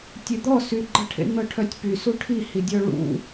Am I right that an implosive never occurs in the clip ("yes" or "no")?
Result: yes